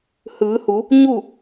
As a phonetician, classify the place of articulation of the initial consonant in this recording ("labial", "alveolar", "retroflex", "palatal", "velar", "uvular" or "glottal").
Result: glottal